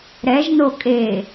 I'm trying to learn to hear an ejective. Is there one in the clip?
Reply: yes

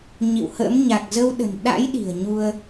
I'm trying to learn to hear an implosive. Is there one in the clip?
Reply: yes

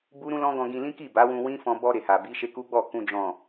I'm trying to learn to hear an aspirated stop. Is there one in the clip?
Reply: no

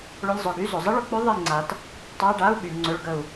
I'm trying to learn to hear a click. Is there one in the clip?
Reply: yes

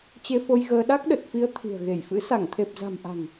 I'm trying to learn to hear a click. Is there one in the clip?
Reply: no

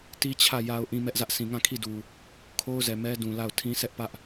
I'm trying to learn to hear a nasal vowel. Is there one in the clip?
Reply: yes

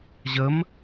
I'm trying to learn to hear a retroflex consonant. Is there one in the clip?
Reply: no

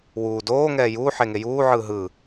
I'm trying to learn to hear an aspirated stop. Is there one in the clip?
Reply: no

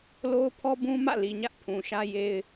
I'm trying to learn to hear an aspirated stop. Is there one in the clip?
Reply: yes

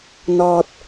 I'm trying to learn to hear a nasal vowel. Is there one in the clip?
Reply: no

